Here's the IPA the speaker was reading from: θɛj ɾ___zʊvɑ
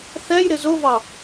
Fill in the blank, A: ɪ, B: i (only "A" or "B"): A